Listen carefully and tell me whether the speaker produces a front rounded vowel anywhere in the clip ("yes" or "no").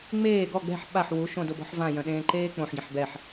yes